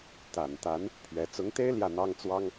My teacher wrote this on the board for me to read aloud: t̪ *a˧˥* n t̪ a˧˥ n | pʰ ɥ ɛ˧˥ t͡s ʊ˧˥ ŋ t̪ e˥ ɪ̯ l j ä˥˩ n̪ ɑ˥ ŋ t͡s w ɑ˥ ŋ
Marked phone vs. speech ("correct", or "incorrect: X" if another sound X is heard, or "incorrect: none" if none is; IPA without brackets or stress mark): incorrect: a˨˩